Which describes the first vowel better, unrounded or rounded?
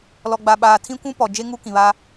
rounded